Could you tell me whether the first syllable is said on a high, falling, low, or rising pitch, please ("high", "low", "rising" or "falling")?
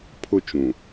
falling